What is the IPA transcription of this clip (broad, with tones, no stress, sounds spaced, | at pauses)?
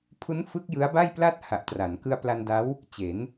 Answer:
pʰ u˦˥ n f ɯ˦˥ k̚ j ɯ˦˥ a̯ b a˥˩ j p l a˥˩ t̚ h a˨˩ ʔ t r a˩˦ n k ɯ˧ a̯ p l a˧ n d a˦˥ w | t͡ɕ e˩˦ n